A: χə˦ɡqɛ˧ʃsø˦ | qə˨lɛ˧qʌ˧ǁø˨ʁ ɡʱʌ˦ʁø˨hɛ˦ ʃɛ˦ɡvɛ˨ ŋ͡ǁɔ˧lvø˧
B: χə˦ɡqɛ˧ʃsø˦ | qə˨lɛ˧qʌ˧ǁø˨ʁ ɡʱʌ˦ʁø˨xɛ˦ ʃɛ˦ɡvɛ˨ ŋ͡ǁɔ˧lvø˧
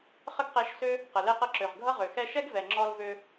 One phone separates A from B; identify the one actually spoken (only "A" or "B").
B